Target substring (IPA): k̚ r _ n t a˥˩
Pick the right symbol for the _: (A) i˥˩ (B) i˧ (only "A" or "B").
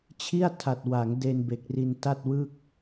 B